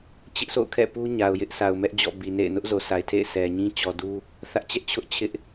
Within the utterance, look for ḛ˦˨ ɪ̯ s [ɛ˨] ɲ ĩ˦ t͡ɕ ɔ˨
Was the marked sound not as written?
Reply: no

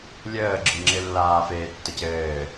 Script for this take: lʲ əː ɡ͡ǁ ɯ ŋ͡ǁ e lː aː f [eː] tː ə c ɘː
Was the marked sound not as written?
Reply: no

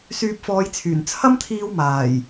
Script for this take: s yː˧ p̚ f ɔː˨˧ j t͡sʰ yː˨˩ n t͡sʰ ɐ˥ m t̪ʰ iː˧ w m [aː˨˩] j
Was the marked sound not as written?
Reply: no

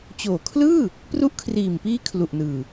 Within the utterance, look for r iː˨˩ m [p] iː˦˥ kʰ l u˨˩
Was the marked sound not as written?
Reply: no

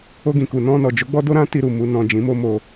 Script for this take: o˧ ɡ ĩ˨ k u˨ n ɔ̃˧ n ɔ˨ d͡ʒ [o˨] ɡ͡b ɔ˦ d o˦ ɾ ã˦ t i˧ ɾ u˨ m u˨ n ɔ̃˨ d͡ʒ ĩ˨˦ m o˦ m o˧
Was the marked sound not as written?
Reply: yes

